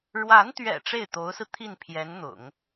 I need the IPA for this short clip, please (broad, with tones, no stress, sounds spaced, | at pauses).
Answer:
ɻ w a˧˥ n t̪ ɥ ɛ̰˨˩ ʈ͡ʂ e˥˩ ɪ̯ t̪ o˧˥ ʊ̯ s ɹ̩˧ t̪ʰ i˥˩ n pʰ j ɛ˧˥ n n̪ ʊ̰˨˩˦ ŋ